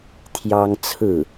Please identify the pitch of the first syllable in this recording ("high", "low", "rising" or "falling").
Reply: high